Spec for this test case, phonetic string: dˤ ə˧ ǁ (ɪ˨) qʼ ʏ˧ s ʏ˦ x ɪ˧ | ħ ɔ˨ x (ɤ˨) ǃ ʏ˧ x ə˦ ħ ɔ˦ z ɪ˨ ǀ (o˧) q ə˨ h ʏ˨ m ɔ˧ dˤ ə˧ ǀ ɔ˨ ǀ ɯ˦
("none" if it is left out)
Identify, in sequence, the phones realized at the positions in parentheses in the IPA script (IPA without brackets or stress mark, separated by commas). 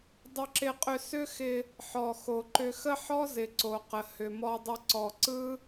ɪ˧, o˨, o˨